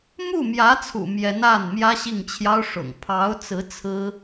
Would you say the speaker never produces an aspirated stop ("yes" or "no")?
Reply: no